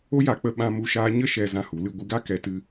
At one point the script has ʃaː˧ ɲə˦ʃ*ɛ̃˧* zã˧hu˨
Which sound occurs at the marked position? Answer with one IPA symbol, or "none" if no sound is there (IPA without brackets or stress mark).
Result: ɛ˧